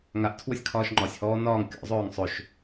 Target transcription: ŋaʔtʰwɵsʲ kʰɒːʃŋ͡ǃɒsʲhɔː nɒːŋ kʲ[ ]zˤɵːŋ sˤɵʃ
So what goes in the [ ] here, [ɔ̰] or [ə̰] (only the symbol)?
ɔ̰